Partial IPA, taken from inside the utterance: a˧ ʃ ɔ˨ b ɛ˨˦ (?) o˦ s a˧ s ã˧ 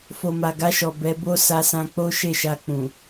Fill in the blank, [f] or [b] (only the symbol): b